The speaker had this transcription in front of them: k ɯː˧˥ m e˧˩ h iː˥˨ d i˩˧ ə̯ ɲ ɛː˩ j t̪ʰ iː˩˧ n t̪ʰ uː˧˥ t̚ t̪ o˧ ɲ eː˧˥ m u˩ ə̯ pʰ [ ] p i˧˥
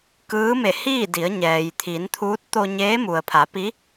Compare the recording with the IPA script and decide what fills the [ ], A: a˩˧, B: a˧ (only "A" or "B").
A